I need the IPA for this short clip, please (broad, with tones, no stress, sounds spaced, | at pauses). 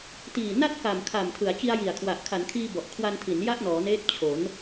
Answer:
t iː˨˩ n a˥˩ t̚ k a˨˩ m kʰ a˨˩ m tʰ ɯ˩˦ a̯ t͡ɕ i˧ a̯ j i˨˩ a̯ kʰ w a˨˩ ʔ kʰ a˩˦ n kʰ iː˧ b ɔ˨˩ ʔ kʰ w a˧ n tʰ i˩˦ n j a˥˩ ʔ n ɔː˩˦ n eː˦˥ t̚ t͡ɕʰ o˩˦ n